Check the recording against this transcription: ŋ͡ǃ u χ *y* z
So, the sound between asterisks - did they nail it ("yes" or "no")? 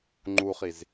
no